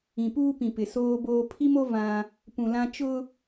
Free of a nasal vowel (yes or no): no